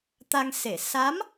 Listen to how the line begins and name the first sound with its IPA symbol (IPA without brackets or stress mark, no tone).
t̪